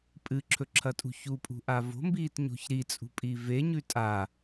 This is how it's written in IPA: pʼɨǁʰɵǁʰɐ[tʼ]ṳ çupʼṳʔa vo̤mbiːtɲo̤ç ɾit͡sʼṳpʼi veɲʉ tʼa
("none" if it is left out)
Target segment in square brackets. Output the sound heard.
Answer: tʼ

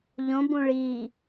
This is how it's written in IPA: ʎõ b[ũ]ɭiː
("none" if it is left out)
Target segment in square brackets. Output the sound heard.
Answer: ũ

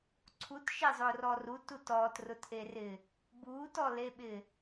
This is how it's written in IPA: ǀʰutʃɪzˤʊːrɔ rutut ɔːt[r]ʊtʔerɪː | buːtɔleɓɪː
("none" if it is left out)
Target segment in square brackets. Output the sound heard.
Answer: r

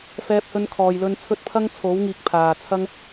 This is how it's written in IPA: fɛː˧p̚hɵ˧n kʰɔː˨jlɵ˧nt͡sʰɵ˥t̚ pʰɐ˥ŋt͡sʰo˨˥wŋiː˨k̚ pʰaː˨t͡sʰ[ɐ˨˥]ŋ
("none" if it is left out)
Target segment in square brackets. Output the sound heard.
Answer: ɐ˥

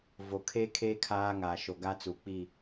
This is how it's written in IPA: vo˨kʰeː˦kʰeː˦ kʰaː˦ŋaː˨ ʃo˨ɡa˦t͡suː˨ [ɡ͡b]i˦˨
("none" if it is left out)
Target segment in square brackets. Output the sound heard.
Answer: k͡p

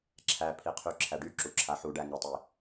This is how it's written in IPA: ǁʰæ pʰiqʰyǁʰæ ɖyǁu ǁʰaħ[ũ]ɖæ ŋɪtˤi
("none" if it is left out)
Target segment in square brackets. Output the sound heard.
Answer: u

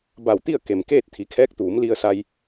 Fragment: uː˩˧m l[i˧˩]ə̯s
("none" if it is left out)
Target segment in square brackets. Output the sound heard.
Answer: i˧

